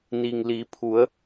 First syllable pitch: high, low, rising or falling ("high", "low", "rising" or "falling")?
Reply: low